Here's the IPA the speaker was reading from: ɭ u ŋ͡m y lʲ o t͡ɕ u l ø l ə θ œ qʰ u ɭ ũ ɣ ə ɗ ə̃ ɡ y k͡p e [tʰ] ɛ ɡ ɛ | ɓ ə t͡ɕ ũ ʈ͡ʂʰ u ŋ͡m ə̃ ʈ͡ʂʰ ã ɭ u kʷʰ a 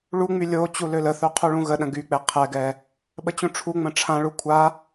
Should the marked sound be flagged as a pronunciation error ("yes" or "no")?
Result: yes